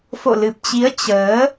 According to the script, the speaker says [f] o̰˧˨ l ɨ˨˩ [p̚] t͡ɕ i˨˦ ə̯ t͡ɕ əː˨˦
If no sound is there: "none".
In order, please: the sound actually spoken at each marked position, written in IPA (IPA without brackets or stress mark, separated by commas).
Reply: f, p̚